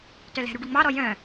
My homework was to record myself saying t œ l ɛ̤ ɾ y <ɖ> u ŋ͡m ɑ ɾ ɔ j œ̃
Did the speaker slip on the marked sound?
no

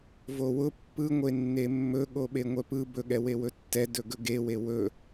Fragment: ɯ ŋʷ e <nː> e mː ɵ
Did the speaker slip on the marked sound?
no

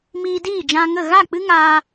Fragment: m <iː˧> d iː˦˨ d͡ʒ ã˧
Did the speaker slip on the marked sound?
no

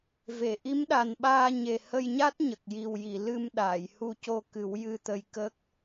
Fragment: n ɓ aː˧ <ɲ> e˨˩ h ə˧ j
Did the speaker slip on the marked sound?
no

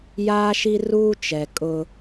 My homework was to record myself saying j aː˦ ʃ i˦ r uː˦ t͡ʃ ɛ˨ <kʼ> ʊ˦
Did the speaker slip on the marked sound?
no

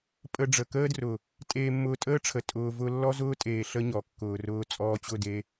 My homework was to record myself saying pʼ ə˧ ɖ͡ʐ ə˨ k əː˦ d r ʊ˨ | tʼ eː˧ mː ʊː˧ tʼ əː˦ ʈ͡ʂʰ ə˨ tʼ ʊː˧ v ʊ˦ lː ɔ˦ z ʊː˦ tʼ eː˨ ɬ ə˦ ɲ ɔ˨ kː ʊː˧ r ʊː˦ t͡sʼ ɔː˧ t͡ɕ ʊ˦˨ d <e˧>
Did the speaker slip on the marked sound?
no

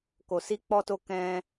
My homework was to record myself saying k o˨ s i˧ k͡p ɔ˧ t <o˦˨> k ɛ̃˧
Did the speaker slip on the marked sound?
yes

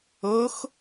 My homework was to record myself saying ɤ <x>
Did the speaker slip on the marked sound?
no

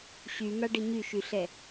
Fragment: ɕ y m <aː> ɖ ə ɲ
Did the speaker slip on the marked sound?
yes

